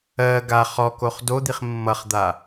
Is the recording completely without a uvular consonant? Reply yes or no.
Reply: no